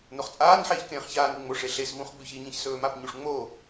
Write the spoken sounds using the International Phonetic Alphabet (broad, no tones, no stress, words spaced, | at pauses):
noχt͡sʼaːnħeːç kẽːχçaːnʉ ŋ͡moʂe ɬesvũχ ɡ͡bʉçiɲĩç sɵːmapɲuʂ ŋ͡mo